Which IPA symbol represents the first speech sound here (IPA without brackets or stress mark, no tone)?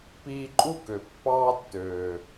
p